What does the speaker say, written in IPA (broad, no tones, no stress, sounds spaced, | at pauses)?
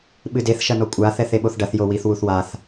ɓ ɨ d e θ ʃ ɐ n ɔ kʷʼ a θ ɛ θ e ɓ o θ ɖ ɐ θ j o w i θ w u θ w a θ